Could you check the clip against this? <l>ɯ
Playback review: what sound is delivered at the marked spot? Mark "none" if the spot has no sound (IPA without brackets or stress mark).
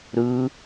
ɾ